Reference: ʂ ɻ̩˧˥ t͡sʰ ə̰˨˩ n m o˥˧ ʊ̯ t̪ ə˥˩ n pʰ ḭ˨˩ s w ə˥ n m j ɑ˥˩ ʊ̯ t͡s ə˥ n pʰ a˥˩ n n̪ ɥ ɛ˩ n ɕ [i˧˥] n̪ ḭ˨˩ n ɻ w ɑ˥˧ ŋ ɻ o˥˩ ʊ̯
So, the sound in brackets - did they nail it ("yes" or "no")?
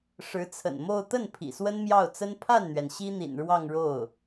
no